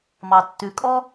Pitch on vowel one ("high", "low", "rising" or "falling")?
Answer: low